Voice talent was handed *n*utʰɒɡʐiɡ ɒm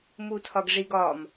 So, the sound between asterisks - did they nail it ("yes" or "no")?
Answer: no